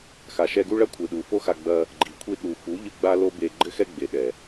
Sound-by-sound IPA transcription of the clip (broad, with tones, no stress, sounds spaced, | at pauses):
x a˨ ʃ ɛ˧ ɡ u˦ ɭ ɐ˦ kʷʰ ɨ˨ ɗ u˨ f o˦ x a˧ ɡ͡b ɐ˧ | ɡ͡ǃ i˨ kʷʰ i˧ ɗ u˨ f u˨˦ ʎ ɨ˧ ɡ͡b a˦ l o˦ b e˧ ɡ͡ǃ ɘ˦ x ɛ˦ ɡ͡b e˨ ɗ ɛ˨